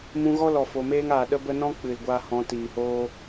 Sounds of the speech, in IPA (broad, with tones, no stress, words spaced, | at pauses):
mũ˧ɣɔ˦ lɔ˨fo˨meː˦ŋaː˨ ɗə˦bə˦ nɔ̃˦ k͡pɨ˨lɡʷaː˧hɔ̃˨˦ tiː˨hoː˦